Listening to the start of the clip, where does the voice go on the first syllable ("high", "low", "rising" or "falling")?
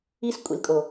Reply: high